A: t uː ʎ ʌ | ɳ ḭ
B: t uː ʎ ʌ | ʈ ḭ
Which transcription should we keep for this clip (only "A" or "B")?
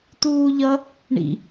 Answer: A